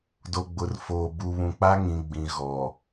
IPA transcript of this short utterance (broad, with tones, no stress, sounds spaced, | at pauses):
d o˨ ɡ͡b ʊ˨ r f oː˨ b u˨ β ũ˨ k͡p a˦ ŋ ĩ˨ ɡ͡b ĩ˨ ɣ ɔ˨